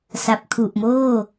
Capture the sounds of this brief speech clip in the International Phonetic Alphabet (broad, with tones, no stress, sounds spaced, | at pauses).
s a˨˩ p̚ kʰ u˨˩ ʔ m oː˥˩